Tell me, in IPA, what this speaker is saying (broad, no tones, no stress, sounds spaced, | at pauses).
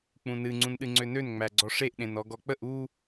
k͡p ũ n ɨ ŋ͡ǀ ũ n ɗ ɨ ŋ͡ǀ ø n ø n ŋ͡m æ ɡ͡ǀ ɔ ʂ e ʔ ɗ ẽ n ɔ ɡ ɔ k͡p ə ʔ u